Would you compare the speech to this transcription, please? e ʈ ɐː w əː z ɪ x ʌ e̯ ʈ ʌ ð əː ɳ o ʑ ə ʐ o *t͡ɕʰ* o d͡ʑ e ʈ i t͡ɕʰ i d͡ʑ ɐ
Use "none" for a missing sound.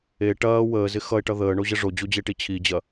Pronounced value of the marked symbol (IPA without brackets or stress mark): d͡ʑ